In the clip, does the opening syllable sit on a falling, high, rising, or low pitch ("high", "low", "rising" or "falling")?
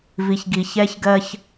low